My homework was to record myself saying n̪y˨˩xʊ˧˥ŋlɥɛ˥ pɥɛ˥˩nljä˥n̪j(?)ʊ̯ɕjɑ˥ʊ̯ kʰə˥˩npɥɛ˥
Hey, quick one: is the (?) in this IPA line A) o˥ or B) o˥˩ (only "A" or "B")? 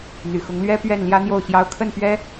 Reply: B